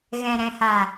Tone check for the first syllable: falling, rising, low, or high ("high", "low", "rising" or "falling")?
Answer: low